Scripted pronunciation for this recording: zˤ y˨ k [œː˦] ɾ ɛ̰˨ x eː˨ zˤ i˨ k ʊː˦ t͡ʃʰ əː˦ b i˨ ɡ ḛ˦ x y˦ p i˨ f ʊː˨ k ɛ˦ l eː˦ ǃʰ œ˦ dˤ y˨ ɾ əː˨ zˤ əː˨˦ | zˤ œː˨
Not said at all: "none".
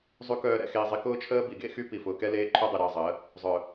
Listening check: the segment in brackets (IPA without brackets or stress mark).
œː˨